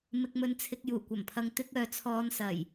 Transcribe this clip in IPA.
m ɪ˨ k̚ m ɵ˨ n t͡sʰ ɪ˨ k̚ j uː˨˩ kʷ ɐ˨˩ m pʰ ɐ˨ ŋ t̪ ɪ˧ k̚ œː˨ t͡sʰ ɔː˨˧ n s ɐ˨˩ j

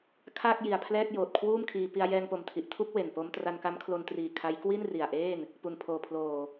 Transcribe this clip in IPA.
kʰ aː˥˩ k̚ j i˨˩ a̯ pʰ l ɛː˥˩ k̚ j oː˨˩ t̚ kʰ w uː˥˩ m kʰ iː˧ p i˧ a̯ j ɛː˧ ŋ p o˨˩ m tʰ i˨˩ ʔ tʰ u˥˩ k̚ w e˨˩ n p o˦˥ m t r a˧ n k a˦˥ m kʰ l o˧ n t r iː˨˩ kʰ a˦˥ j k w i˥˩ n r i˨˩ a̯ ʔ eː˥˩ n | p u˨˩ n pʰ oː˨˩ pʰ l oː˨˩

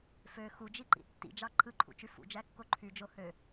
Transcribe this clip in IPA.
f ø x u d͡ʒ i ǃ ḭ tː ḭ d͡ʒ ɑ ǃʰ ɯ ǃʰ ṵ t͡ʃ y f ṵ d͡ʒ æ kː o ǃʰ y d͡ʒ o h ø

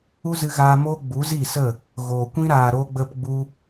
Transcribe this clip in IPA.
u˦ z ɨ˧ ɣ aː˧ m oː˦ ɡ͡b u˨˦ z i˦˨ s ə˦˨ | ɣ oː˨ kʷ ĩ˦ ɾ aː˨ ɾ o˧ ɡ͡b ə˧ p ɡ͡b u˧

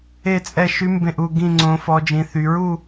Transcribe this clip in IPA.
e˥˧ t͡sʼ ɛ˥˧ ʃ y˧˥ m b ẽ˥˧ ʔ u˥˧ ɡ ĩ˥˧ ŋ͡ǀ õ˧˥ f ɔ˧˥ d͡ʒ ĩ˧˥ θ y˧˥ ɹ u˥˧

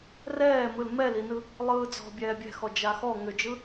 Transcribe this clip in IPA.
r ɛː m ɯ l m ɛ l i n ɯ | lˠ ɯː d͡z ɔ̤ bʲ ɛː bʲ ɛ̤ x ɔ d͡ʒ a x ɔ ŋ ʏ d͡ʒ ɯ

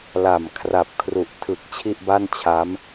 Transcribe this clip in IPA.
l a˨˩ m kʰ r a˨˩ p̚ kʰ r u˨˩ ʔ tʰ ɯ˨˩ k̚ t͡ɕʰ i˥˩ ʔ b a˥˩ n t͡ɕʰ a˦˥ m

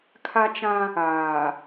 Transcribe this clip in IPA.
kʰ a˦ t͡ʃ ã˦ | aː˨

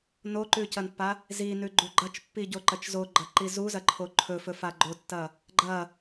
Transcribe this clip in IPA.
n o ǃ ʉ c ɐ n pː a | z i n ʉ ɡ͡ǃ u ɡ͡ǃ ɐ t͡ʃ pː i ɟ o ǃ ɐ t͡ʃ z o ɡ͡ǃ ɐ ǃ i z u z ɐ ǃʰ o ǃʰ ɵ f ɵ f a ɡ͡ǃ o tː ɐ | ɡ͡ǃ ɐ

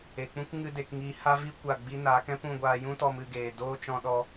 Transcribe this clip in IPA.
e˨ k͡p ũ˦ k ŋ ɨ˦ d e˧ k ŋ iː˧ h a˦ v i˦ kʷ a˦˨ ɡ͡b i˦ n aː˨˦ k ɛ̃˦ p ũ˦˨ ɡʷ aː˧ j ũ˦ t ɔ˧ m ɨ˦˨ ɡ eː˨ d oː˦ t͡ʃ ɔ̃˧ ɗ ɔ˧

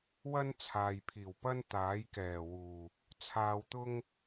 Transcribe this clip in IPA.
w ɐ˥ n t͡sʰ aː˨ j pʰ iː˨˩ w p ɐ˥ n t̪ aː˨˥ j k ɛː˨˩ w uː˨˩ | t͡sʰ aː˧ w t̪ ʊ˥ ŋ

